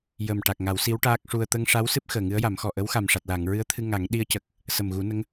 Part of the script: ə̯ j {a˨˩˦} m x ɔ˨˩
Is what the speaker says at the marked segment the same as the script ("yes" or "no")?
yes